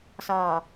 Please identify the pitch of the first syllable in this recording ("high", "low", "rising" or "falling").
low